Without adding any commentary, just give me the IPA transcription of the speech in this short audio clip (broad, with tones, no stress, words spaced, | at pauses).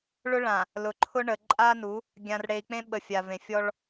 ɭʊ˦ɭã˨ | lʊ˨ǃʰʊ˦ ɳə˨ǃʼa˦nu˨˦ | ɡʲã˨r ɽe˨i̯k͡pẽ˦ɓə˨ fʲa˨vẽ˨ fʲɔ˦ɭ